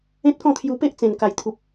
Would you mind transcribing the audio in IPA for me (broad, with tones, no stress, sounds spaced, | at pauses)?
ẽ˦ t̚ k ɔ̃˥˧ t̪ʰ j u˧ p e˦ ʔ t͡s ẽ˨˩ n k a˨˩ j t̪ʰ u˨ p̚